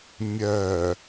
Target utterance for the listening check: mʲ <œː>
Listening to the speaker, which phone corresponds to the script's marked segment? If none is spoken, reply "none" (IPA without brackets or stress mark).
œː